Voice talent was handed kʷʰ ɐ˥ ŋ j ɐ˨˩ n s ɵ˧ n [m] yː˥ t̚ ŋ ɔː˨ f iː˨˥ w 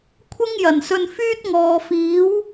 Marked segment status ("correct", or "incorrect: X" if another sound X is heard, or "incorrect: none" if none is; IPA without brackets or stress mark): incorrect: f